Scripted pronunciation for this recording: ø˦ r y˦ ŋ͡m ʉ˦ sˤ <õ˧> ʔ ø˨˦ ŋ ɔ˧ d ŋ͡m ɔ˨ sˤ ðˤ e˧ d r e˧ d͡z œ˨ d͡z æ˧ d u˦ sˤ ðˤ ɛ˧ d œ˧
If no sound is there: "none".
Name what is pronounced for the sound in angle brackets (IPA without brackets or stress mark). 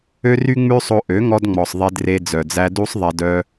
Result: o˧